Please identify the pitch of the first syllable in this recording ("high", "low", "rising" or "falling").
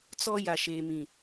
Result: high